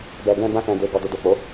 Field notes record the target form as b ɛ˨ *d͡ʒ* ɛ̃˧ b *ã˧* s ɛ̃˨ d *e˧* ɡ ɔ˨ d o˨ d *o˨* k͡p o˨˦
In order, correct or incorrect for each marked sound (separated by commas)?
incorrect, correct, incorrect, correct